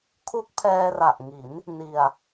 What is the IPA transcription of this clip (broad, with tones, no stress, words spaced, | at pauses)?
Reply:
kʰu˦˥k̚pʰɛː˧ra˨˩ʔŋi˩˦n | ni˧a̯